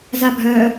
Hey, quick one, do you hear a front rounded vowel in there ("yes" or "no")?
yes